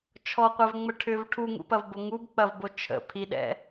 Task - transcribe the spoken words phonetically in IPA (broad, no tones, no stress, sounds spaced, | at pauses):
t͡ʃʰ ɔ qʷ ɛ v ŋ͡m ə ʈʰ ʏ v ʈʰ u ŋ ṵ p ɐ v b o ŋ u b k͡p ɐ v b o t͡ʃʰ ə̰ pʰ i ɗ ɛ̰